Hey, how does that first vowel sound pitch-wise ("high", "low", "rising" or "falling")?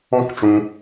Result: high